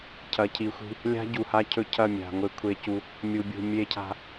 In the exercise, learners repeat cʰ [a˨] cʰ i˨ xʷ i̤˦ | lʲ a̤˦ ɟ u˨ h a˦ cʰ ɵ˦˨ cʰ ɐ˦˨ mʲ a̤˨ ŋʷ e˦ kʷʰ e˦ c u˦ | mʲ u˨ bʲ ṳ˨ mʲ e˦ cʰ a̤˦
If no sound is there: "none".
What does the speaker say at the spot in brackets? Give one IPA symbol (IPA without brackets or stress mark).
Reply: ɐ˨